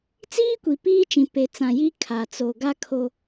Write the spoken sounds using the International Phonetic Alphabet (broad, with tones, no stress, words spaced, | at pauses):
t͡siː˦kʷi˨ piː˦t͡ʃĩ˨ pe˨t͡sã˨ji˦ kʰa˨t͡so˨ɡa˦kʰo˦